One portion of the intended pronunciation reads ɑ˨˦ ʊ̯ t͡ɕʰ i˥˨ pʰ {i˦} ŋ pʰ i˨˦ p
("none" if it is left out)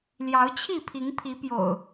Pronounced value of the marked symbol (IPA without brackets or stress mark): i˨˦